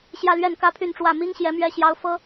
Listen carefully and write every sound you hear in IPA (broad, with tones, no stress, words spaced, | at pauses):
ɕjä˥˧lɥɛ˥˩n kä˥pʰy˥˧nʈ͡ʂwä˥˩ mi˥ŋɕjɛ˧˥ mɥɛ˥ ɕjɑ˥ʊ̯fɤ˥